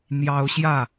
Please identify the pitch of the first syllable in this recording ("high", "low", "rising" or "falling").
high